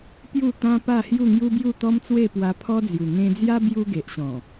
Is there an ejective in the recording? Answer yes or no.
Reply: no